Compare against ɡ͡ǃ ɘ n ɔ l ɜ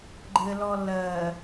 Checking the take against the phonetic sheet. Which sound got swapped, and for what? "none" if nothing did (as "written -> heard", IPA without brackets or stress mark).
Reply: n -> l